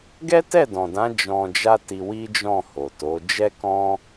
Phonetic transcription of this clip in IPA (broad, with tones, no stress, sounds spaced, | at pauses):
ɡ ɛ˦ t ɛ˦˨ d ɔ̃˨ d ã˨˦ d͡ʒ ɔ̃˧ d͡ʒ a˦ t i˧ w i˦ d͡ʒ ɔ̃˦˨ h o˨ t o˨˦ d͡ʒ ɛ˦ k ɔ̃˦